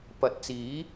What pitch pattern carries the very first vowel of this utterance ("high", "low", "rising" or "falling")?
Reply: rising